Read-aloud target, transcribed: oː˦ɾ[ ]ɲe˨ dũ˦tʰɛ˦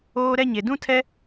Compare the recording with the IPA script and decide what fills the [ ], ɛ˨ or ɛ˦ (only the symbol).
ɛ˦